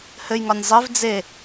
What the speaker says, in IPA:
h ɘ j ŋ ɒ nʲ zˤ e v d͡z e

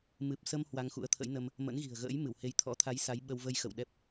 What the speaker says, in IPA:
m ɨ˨˩ p̚ s ə˧ m h w a˧ ŋ x ṵ˧˥ ə̯ t̪ʰ ə̰˧˥ j n ə˧ m | m ə̰˧˥ n ɣ i̤˨˩ ə̯ ɣ ə̰ː˧˥ j m ɨ˧˩ w h e˨˦ j t̪ʰ ɔ̰˧˥ t̪ʰ a˨˦ j s a˨˦ j ɓ ə˧ w v ə˧ j x ə̰˧˨ w ɗ ɛ˦˥ p̚

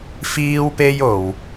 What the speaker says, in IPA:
f iː˥ w p e˥ j o˨ w

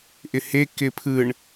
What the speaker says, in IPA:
ʔ ɪ h e k ɪ pʰ ɯ ɳ

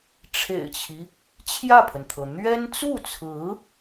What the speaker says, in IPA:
ʈ͡ʂʰ ḛ˨˩ ɪ̯ t͡ɕʰ i˦ | t͡ɕʰ j ä˥˩ pʰ ə˩ n t̪ʰ ɤ˩ n̪ ɥ ɛ˥ n t͡s u˥˩ t͡sʰ ɹ̩˧˥

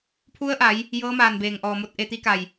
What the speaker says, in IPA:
pʰ u˧˥ ə̯ ʔ a˩˧ j | j ɤː˧˥ m aː˧˩ n b eː˩ ŋ ʔ ɔː˩ m o˧ t̚ ʔ e˧ t̪ i˧˥ k a˧˩ j

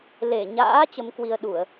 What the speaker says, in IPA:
l e˧˩ ɲ a̰ː˧˥ t͡ɕ ə˨˦ m k w i˧ ə̯ ɗ u˧˩˨ ə̯

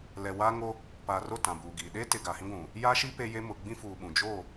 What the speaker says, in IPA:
l ɛ˨ w aː˦ ŋ o˦ | p aː˨ r o˦˨ t ã˨ b uː˨ ɡ iː˨ ɗ e˦ t ɪ˨ ɡ a˨ h ĩ˦ ɡʷ ũ˨ | j a˦ ʃ i˦ p e˦ j e˦ m ʊ˨ ɡ͡b ĩ˦ f uː˨ ɓ ũ˨ d͡ʒ o˦˨

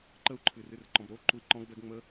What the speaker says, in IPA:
ǃ ə u̯ ǃʰ ɨ r ɨ r ǃ ɔ̃ b ɾ o ǃ u i̯ ǃ ɔ̃ ɡ b ɛ ɡ ŋ͡m ə

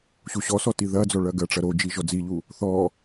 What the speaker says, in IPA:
ɕ u ɕ ɔ s ɔ t i ð ɐ d͡z ɔ ɭ ɐ ɡ ɐ ʈ͡ʂ ɐ ɾ o d͡ʒ i ʒ ɔ d͡z i ʎ u | θ ɔ

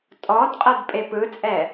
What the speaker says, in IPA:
tʼ ɔ d qʼ ɤ d pʼ e p ɯ t͡sʼ ɛ

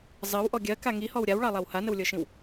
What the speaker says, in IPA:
zˤ ɜ w ʔ ɔ ɡʲ ɜ k a ŋ i h ɔ w ɾʲ a w ɭ ɑ lˠ a w h a n ə w lʲ ɤ ʃ ĩ w

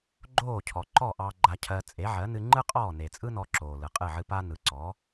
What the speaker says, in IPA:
ɡ͡ǃ oː˥˩ cʰ ɔ˩ ǃ ɔ˥˩ ʔ ɑ˧ ɡ͡ǃ a˧ cʰ ɜ˧ t͡sʼ e˩˥ ʕ ɜ˩˥ n ɨ˧ ŋ͡ǃ ɯ˥ qʼ ɔː˥˩ n e˩ t͡sʼ ɯ˥ n ɔ˧ ǁ oː˩ l ɯ˩ qʼ ɨ˥˩ ʕ ɨ˧ p a˥ n ɯ˩˥ ǀ ɔ˩˥

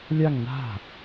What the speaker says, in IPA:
lʲ a ŋ n a̤

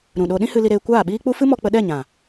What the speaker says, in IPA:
ɾ ũ˨ ɗ o˧ ɗ ĩ˦ h ɨ˧ l i˧ ɾ eː˧ kʷ aː˦˨ ɓ iː˦ k͡p u˦ f ɨ˦ m ɔ˧ k͡p ə˧ ɗ ɛ˦˨ ɲ ã˨

